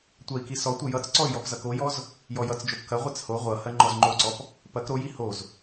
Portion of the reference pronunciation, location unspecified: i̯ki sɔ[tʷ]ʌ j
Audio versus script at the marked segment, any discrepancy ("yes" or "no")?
no